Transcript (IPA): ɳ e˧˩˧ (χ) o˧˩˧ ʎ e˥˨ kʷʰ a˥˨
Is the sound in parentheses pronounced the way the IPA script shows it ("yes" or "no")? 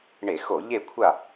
no